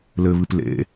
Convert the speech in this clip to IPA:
lɘβɨp lḛ

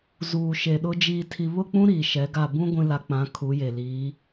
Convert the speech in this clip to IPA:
zuː˨ʃe˨ɗʊ˦ d͡ʒiː˨tʰi˨βʊ˦˨k͡pũ˦ ɾiː˨ʃɛ˨˦ɡa˦˨ bũ˦ ɡʷĩ˦la˦ k͡pã˨˦ kʰu˨˦je˨liː˨˦

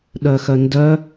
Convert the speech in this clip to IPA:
ɗœxœndœ

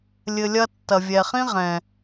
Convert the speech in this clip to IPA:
lʲɘ˧lʲɐ˦ tːɐ˨vʲɛ˨χĩ˦ʁɛ̃˨

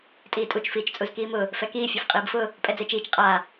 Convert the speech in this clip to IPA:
tʼiːtʼut͡ʃ fiːt͡ʃt͡sʼuzkiːmʊ | fɛkiː fʲɔfqʼiːbfʊ | pʼɛd͡zet͡ʃiːt͡ʃ qʼa

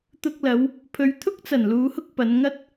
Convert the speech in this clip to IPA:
t̪ʊ˧k̚lɐ˨˧w | pʰɵ˨˧ɥt̪ʰʊ˥k̚t͡sɐ˨˩n luː˨˧hʊ˥k̚ pɐ˨˧nŋɐ˥t̚

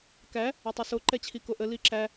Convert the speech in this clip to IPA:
kæ | ɛtˤiso ǃɛt͡ɕʰikoʔə liǁæ

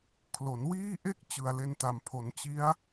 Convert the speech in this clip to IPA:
kʰlo˩˦nwiː˥˩ʔe˥˩k̚ t͡ɕɯ˨˩a̯le˧nta˨˩mpʰo˩˦n t͡ɕi˦˥a̯

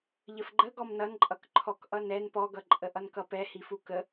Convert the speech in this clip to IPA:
ʎəfɡ͡ǃə ɡɔmnʌnǃʼʌk ǃʰɔkʔʌnɛn pɔɡʌ ǃʼəʔʌnkʌpɛ hifukə

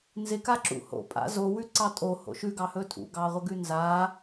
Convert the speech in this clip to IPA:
nzɪkaǁṵ ho̰pʼa̰ zowʉǀɑ tʼoho̰ ʃʉɡɑhɵ tʼṵɡɑʁʷəɡʉ nza

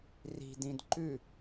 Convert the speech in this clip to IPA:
ri̤dĩd ǃʉ

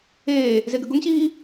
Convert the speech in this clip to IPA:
eː | zeɡəɡʊŋɕiː

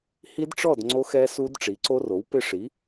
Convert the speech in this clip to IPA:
hi˦˥dʈ͡ʂɔ˥˨d ŋ͡ǀo˦˥xɛ˦˥su˦˥d ʈ͡ʂi˩˥ǀo˦˥ro˩˥wpɪ˥˨ ʂi˩˥

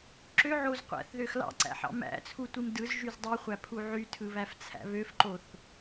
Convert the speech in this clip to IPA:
ǁøʕoz qʷæ̰θðøx lɑ̰ǀæ̰ħɑ̰ mæ̰t͡sʰutʷim dɯzʒyz dˤiχʷæpʰu ʕytʰɯβæft͡sʰæ̰ βøfǃoθ

